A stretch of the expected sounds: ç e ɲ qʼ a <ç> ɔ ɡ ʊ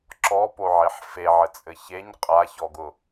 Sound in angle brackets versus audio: correct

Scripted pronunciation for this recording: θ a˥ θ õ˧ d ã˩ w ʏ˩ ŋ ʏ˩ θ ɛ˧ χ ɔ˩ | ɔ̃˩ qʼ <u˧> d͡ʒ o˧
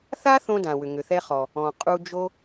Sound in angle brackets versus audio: correct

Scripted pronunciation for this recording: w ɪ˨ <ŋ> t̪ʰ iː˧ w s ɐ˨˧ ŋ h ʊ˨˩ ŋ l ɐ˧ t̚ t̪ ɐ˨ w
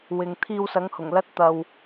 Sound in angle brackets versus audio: correct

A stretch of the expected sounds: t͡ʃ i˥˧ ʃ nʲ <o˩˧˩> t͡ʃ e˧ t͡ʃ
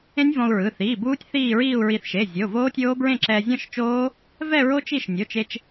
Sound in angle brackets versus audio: correct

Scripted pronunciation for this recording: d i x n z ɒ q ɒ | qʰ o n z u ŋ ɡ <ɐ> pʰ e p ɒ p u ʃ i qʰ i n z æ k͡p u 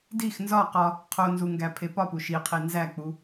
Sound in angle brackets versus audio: incorrect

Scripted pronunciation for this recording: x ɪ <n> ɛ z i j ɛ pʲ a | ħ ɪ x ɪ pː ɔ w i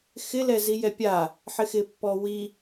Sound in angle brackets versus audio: incorrect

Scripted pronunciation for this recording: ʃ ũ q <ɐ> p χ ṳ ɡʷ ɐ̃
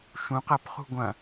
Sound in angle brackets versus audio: correct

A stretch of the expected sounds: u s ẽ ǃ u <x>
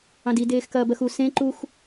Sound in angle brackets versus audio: correct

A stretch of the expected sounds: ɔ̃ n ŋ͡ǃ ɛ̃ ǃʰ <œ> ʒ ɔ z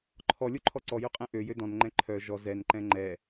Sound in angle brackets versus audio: correct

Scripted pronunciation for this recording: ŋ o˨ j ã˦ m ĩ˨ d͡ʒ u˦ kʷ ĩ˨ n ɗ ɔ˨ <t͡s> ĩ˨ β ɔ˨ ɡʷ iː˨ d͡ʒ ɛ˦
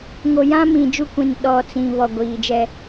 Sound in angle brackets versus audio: correct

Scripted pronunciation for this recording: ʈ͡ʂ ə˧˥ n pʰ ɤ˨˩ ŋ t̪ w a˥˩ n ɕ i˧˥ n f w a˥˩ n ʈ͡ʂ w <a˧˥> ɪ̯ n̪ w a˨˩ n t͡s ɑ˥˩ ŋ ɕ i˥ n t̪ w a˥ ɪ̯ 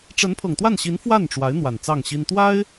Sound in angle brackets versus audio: correct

